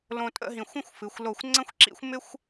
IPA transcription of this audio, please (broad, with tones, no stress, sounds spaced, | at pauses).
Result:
l õ˧ tʼ ə̰˥˧ ɦ ĩ˧˩ xʷ ə̃˥˧ xʷ f ɨ˩˧ xʷ l o˧˩ xʷ ŋ͡ǀ ə̃˥ xʷ ǁ ḭ˥ xʷ m ɪ˥ xʷ